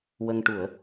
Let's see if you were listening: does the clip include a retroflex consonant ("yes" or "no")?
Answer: yes